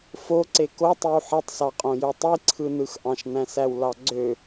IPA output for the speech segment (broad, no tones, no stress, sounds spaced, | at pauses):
f o ǀ e k o tˤ i w ħ i tˤ s ɑ qʼ õ j ø tˤ i ǀʰ ɯ n ɯ x ʔ ɑ̃ ʃ n æ̃ s æ w l ɑ ɡ͡ǀ ø